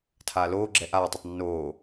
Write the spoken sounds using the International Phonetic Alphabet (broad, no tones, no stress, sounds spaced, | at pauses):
tʰ aː l oː ɡ͡ǁ ɛ ʔ aː tˤ ʌ tˤ nː oː